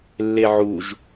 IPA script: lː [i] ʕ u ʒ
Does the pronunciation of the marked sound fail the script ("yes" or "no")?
yes